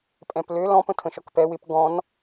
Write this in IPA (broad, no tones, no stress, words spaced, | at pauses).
pʼɛ̃plø lɔ̃pə̃ tʰə̃ʃɔkpɛ wɪp ɡɔ̃n